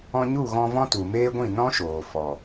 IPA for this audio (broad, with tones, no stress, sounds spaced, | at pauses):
ɔ̃˧ ɲ u˦˨ ɣ ɔ̃˧ v ɔ̃˦ t u˨ m eː˦ ɡʷ ĩ˦˨ n ɔ̃˦ ʃ oː˨ f ɔ˨